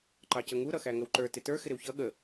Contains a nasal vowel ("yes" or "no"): no